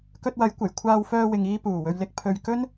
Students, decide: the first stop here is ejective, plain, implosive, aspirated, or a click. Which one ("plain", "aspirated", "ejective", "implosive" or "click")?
plain